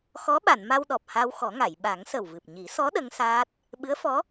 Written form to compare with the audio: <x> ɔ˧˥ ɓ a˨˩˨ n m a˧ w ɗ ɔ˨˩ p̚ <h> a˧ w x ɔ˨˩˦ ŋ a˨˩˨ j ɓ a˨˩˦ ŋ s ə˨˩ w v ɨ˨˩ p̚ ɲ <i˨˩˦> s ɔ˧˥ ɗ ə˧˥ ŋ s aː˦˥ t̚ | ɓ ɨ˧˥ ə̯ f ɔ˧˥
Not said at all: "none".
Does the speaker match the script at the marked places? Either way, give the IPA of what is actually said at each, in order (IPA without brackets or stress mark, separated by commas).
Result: x, h, i˨˩˦